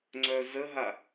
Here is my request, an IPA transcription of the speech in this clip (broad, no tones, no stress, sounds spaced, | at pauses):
ŋ͡ǀ œ z ə ɦ a